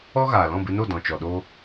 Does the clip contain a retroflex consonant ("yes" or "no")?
no